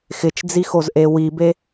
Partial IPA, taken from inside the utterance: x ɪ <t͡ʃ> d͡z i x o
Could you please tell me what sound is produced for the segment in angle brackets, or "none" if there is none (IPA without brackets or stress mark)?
t͡ʃ